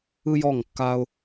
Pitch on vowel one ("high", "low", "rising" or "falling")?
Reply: high